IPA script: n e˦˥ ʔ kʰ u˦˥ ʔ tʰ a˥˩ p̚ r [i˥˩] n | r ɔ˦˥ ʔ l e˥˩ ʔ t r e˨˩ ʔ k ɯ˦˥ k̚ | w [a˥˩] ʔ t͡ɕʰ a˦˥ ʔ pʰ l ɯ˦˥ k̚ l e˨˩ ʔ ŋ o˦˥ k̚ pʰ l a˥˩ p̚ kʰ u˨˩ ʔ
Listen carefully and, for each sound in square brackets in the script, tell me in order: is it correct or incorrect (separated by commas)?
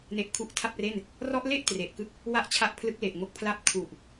incorrect, correct